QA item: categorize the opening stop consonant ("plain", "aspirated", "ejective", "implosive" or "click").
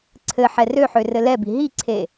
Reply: click